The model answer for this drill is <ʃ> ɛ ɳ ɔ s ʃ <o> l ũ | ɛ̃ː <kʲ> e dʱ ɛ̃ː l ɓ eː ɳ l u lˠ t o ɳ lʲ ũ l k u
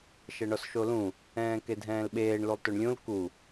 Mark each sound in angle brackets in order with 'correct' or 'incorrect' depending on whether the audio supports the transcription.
correct, correct, incorrect: k

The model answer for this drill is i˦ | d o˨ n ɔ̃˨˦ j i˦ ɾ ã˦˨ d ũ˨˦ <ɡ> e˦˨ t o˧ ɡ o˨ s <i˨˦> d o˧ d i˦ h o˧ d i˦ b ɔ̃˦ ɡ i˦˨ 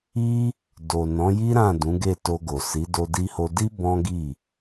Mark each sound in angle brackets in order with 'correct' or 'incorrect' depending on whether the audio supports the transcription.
correct, correct

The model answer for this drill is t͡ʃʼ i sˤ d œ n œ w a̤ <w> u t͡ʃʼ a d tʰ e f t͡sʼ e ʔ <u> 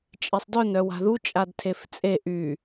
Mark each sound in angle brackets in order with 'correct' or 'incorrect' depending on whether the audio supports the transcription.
incorrect: ð, incorrect: y

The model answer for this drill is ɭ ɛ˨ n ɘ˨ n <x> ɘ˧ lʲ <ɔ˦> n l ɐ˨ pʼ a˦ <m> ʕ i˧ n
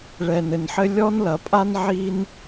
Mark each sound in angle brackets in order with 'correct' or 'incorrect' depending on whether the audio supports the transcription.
incorrect: ħ, correct, incorrect: n

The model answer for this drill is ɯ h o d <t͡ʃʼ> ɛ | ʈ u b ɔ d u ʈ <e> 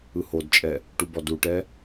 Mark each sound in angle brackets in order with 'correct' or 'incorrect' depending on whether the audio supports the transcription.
correct, incorrect: ɛ

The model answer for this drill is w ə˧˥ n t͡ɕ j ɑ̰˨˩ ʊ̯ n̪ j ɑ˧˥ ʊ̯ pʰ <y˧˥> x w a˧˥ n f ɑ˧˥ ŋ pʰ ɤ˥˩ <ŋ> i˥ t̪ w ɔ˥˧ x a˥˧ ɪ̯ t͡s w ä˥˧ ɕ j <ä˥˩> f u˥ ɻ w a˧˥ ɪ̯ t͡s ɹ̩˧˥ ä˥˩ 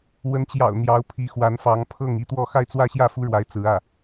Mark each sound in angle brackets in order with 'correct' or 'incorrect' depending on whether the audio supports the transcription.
incorrect: i˧˥, correct, correct

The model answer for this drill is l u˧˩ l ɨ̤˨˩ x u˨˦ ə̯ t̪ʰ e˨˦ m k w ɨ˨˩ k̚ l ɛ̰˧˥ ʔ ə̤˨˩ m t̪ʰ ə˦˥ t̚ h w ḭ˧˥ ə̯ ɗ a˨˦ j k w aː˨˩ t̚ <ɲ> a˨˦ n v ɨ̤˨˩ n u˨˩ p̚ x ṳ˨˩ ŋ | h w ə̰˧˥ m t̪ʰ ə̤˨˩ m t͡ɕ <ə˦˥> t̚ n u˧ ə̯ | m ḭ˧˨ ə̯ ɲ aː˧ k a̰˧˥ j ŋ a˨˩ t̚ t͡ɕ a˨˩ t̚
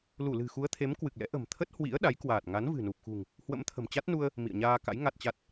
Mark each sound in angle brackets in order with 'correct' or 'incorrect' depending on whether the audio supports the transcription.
incorrect: ŋ, incorrect: a˦˥

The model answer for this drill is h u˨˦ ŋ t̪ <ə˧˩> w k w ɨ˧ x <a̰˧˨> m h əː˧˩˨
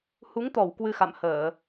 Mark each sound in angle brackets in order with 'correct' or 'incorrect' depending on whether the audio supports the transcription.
incorrect: ɔ˧˩, correct

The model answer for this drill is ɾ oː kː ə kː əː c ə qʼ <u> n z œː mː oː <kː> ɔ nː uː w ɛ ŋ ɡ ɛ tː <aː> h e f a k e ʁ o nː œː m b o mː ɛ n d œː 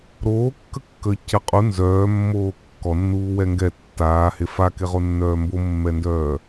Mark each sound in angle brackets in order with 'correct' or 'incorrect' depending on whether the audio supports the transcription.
correct, correct, correct

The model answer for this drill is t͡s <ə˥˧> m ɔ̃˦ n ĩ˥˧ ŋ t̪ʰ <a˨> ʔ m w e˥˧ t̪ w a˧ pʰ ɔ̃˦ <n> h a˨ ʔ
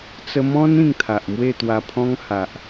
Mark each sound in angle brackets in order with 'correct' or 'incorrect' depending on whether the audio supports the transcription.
incorrect: ə˧, correct, incorrect: ŋ

